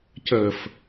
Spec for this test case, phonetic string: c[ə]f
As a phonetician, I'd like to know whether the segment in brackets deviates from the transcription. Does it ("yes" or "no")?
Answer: no